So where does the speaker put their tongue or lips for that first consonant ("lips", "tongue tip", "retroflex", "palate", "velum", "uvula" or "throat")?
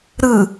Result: tongue tip